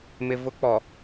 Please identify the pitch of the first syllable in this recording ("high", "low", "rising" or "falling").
low